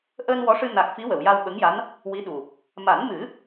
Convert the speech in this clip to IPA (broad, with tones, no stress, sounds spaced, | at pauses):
ʔ əː˧ n w ɔ˧˥ ʂ ɨ˧ n a˨˩ k̚ f i˧˥ w ə˨˩˨ w j a˧ w ɓ ə˧˥ ŋ j a˧˥ n | w i˧˥ ɗ u˨˩ | m a˨˩˦ n m ɨ˨˩˦